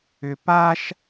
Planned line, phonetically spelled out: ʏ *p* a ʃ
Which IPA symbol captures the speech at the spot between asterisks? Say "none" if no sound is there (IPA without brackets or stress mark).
p